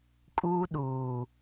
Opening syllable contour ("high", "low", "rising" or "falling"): high